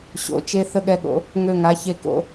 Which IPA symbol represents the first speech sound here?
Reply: ɕ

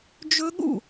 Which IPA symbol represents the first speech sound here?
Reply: d͡ʒ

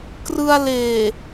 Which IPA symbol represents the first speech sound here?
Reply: k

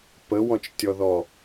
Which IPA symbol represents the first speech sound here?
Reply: p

